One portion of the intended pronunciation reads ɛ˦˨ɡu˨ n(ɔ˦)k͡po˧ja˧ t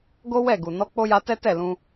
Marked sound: incorrect: ɔ˨˦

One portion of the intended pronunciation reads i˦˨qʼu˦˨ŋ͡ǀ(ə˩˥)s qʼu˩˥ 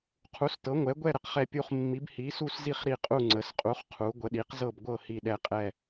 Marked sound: correct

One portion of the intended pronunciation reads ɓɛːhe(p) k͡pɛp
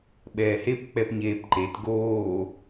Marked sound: correct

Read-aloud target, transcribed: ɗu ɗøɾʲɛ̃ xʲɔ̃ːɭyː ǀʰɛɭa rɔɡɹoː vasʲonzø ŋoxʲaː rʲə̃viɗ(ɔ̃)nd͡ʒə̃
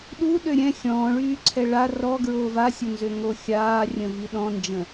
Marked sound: correct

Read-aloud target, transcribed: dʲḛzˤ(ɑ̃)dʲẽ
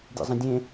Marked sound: incorrect: ə̃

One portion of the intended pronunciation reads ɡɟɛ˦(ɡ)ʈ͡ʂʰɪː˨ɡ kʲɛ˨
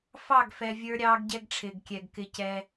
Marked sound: correct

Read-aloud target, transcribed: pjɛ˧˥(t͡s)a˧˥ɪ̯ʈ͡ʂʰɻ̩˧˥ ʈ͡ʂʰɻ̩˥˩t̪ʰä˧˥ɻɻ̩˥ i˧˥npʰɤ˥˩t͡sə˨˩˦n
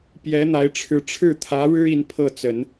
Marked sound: incorrect: n̪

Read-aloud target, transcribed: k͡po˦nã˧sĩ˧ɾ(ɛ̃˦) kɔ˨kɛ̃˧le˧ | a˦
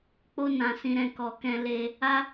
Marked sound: incorrect: ɛ̃˧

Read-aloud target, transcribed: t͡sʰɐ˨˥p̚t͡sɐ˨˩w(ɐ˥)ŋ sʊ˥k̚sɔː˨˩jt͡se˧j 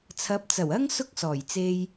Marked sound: correct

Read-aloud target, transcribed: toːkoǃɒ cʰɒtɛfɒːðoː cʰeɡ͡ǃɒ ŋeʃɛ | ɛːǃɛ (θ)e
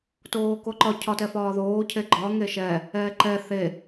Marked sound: correct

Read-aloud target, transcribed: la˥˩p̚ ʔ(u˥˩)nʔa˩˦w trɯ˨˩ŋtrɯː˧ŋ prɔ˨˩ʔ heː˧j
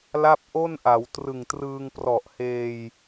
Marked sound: incorrect: o˥˩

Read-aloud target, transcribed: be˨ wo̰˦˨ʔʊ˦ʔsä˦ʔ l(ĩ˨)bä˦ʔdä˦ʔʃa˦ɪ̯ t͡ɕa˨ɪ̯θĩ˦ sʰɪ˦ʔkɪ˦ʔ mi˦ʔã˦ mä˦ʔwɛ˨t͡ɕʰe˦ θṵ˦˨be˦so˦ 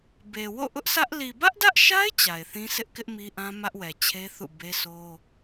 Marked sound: incorrect: i˨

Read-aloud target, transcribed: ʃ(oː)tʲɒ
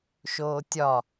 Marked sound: correct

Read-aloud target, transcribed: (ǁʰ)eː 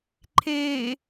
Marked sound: incorrect: ǃʰ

